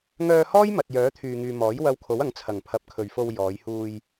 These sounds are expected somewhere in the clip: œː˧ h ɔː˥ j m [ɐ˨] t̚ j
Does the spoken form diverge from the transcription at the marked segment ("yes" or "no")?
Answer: no